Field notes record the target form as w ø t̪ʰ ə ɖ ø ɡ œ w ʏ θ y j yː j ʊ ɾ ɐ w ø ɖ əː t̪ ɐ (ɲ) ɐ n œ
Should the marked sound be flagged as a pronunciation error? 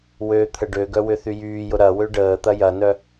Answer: yes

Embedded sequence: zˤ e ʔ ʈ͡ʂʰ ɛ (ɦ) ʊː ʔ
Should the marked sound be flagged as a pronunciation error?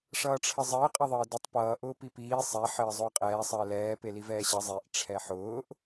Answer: yes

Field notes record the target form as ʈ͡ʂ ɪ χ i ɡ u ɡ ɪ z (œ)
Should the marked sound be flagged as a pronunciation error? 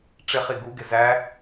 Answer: yes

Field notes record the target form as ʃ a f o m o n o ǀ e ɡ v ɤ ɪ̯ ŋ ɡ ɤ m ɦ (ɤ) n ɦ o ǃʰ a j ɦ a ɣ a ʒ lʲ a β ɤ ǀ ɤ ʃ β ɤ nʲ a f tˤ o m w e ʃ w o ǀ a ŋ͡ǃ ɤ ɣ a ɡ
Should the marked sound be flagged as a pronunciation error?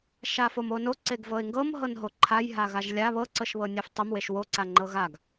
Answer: no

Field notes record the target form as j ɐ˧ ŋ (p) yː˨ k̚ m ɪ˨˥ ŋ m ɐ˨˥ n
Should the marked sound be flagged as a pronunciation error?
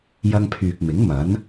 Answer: yes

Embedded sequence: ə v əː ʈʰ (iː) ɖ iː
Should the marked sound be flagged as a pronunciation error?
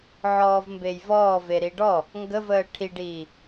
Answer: yes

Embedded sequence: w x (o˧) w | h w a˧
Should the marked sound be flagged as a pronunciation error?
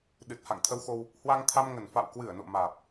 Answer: no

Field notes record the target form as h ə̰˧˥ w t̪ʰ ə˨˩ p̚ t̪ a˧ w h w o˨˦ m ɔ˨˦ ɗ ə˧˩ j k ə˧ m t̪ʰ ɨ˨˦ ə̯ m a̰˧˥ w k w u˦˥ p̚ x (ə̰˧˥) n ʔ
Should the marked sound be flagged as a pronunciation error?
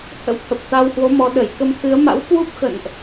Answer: yes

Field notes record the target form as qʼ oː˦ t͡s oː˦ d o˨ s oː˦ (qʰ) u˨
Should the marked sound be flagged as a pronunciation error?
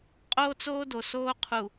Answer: no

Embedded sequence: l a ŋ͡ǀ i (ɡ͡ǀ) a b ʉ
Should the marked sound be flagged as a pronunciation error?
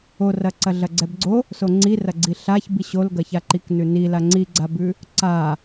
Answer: no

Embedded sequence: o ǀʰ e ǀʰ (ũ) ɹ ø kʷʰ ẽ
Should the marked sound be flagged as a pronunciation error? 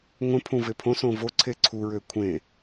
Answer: yes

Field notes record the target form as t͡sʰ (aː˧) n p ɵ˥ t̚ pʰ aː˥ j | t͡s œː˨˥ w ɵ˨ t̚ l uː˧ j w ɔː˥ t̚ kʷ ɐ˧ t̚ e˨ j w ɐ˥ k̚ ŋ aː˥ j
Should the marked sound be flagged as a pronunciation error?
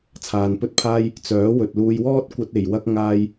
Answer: yes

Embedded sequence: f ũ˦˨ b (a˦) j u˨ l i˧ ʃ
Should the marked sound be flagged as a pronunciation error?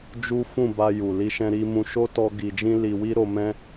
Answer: yes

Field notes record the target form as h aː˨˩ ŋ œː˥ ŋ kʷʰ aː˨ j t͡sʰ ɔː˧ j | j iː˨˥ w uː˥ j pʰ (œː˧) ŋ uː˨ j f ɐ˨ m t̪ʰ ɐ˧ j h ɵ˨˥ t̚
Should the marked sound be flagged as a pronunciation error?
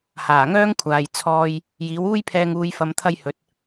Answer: yes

